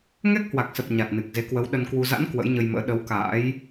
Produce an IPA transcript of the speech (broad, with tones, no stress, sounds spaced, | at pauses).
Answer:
ŋ ɛ˦˥ k̚ h w a˨˩ k̚ s ə˨˩ p̚ ɲ a˨˩ t̚ n ɨ˨˩ k̚ z e˨˦ k w ə˨˦ w ɗ ə˧ n k w u˧ z a̰˧˥ n k w ə̰˧˥ j ɲ ə˧ j m ə̰ː˧˥ ɗ ə˨˦ w k a̰ː˧˥ j